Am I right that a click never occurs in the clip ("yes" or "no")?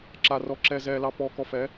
no